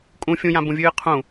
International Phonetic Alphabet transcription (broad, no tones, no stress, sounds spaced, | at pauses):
kʼ ũ fʲ ũ j ã b ũ vʲ ɨː qʰ ũ